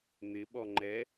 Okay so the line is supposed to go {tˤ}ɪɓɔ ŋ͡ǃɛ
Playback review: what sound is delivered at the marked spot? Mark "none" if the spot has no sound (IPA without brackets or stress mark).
n̪